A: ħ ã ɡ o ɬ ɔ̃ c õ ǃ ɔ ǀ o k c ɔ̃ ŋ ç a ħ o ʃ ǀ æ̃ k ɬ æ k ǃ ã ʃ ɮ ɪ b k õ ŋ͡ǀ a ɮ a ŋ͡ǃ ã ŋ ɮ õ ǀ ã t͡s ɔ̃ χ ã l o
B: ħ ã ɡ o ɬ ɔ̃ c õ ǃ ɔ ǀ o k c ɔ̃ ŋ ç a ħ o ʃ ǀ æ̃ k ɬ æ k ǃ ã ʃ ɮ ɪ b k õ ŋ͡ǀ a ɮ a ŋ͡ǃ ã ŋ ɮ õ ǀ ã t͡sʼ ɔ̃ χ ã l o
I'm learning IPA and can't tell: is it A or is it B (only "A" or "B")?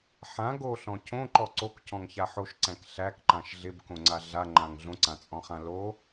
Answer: B